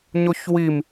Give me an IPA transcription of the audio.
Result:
ɲ o ç w i m

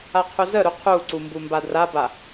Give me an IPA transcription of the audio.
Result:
a qʰ u z ə ɾ u qʰ u ǀ u m b u m b a d r a b a

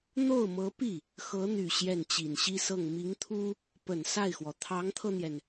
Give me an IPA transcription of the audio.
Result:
n̪ o˥˩ ʊ̯ m ɤ˧˥ p i˥˩ | x ɤ˧˥ n̪ y˨˩ ɕ j ɛ˥˩ n t͡ɕ i˨˩ n ɕ i˥ s ɤ˥˩ ŋ m i˧˥ ŋ t̪ʰ u˥ | p ə˨˩ n s a˥˩ ɪ̯ x w ɔ˩ t̪ʰ ɑ˧˥ ŋ t̪ʰ ɤ˧ n̪ j ɛ˩ n

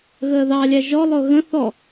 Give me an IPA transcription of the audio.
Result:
ɣ əː ð ɑ lʲ æ ʒ ɔ lˠ ʊ ɣ ə̃ θ ɔ

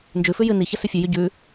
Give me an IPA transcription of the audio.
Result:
n d͡ʒ ʉ f ʉ j ɨ n i ç ɐ s ʉ fʲ ʉ j y ɟ ʉ

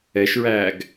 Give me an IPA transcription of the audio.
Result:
ɛ ʃ ɹ æː ɡ

